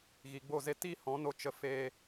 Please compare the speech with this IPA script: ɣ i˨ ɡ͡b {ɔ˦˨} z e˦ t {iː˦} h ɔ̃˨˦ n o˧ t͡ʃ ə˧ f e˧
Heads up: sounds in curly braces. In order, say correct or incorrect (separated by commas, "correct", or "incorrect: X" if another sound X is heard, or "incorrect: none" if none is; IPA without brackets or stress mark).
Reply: incorrect: o˦˨, incorrect: i˦